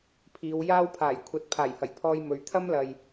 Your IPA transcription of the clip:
pʰ iː˨˧ w j aː˥ w pʰ aː˨˩ j kʷʰ ɐ˨ t̚ pʰ aː˨˩ j h ɐ˨˩ j pʰ ɔː˥ j m ɵ˨˧ ɥ t̪ʰ ɐ˥ m l ɐ˨ j

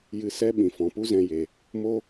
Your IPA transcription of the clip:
j ɨ˧ s ɛ˦ ɓ ĩ˨ f ɔ̃˨ p u˦ z ɛ̃˧ j e˨ | m o˦

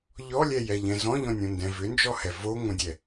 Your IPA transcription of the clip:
ʎ ɔ lʲ ɛ j ɛ ʎ ɛ̃ z ɔ̃ ʎ ɔ̃ nʲ õ n d ɛ̃ v ʏ n d͡ʒ ɔ h ɛ v o ŋ õ dʲ ɛ

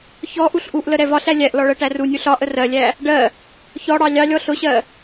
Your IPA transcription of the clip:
ç ɔ ʔ u ɬ ʔ u ʔ l ə ɾ ɛ v ɒ ɬ æ lʲ æ ʔ l ɔ ɭ ɜ ʈ æ r u nʲ u ɬ ɒ ʔ ə r ɜ lʲ æ | ɖ ɜ | ç ɔ ɽ ɑ lʲ ɑ lʲ ɔ ɬ ʊ ɕ ɜ

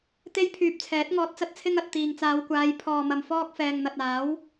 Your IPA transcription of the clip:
t̪ e˥ j pʰ yː˧ p̚ t͡sʰ ɛː˨˥ t̚ ŋ ɔː˧ t̚ t͡s ɐ˧ t̚ t͡sʰ ɪ˧ ŋ ɐ˨ t̚ t̪ iː˨ ŋ t͡s aː˨˧ w kʷ aː˨˧ j pʰ ɔː˨ m ɐ˨ m f ɔː˧ k̚ f ɛː˨ ŋ n̪ ɐ˨ t̚ aː˨˥ w

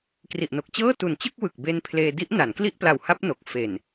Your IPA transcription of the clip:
k r i˨˩ ʔ n o˨˩ k̚ t͡ɕ ɤː˥˩ t u˨˩ n t͡ɕ ɯ˥˩ k̚ w ɯ˨˩ k̚ b e˧ n pʰ l eː˧ d i˦˥ ʔ n a˩˦ n k l i˥˩ ʔ p l a˨˩ w h a˦˥ p̚ n o˨˩ k̚ f e˨˩ n

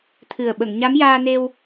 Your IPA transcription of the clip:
t̪ʰ ɨ˨˩ ə̯ ɓ ə˨˩˨ ŋ ɲ a˧˥ m j aː˧ n e˧ w

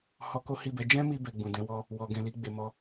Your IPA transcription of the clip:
h ɔ˧ k o˦ h i˦˨ b ɛ˨˦ d͡ʒ ɛ̃˦ m i˧ b ɛ˧ ɡ͡b ũ˨ d ɛ̃˨˦ w ɔ˦ | w ɔ˨ ɡ ɛ̃˨ l i˨˦ ɡ͡b e˧ m ɔ˦

